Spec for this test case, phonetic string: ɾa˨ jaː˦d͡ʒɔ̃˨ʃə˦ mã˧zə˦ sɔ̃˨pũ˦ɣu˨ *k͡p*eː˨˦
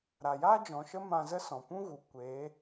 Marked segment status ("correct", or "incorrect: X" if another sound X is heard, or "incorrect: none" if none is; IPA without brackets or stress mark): incorrect: kʷ